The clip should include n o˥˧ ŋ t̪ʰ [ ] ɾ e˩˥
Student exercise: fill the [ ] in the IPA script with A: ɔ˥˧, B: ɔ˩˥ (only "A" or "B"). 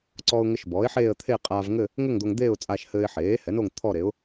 A